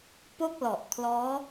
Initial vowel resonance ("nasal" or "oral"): oral